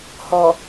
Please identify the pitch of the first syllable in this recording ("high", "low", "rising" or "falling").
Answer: low